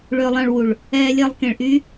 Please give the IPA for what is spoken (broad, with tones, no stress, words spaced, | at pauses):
ɭʏː˧lˠɑ̃˧ɭwu˨ɭ | ɛː˧lʲɛ˧lˠkẽ˨ɭ ʔy˦